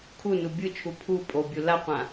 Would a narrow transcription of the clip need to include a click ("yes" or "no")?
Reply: no